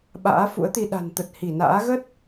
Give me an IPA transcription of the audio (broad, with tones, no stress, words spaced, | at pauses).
ɓa̰ː˧˥fṵ˧˥ə̯t̪i˧ ɗa̤˨˩nt̪ə˨˩t̚hi˧˩na̰ː˧˥ ɣə˦˥t̚